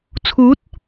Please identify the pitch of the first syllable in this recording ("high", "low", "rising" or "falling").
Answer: rising